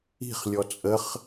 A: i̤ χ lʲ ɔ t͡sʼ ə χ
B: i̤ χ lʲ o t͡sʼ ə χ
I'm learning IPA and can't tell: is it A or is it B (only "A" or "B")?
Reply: A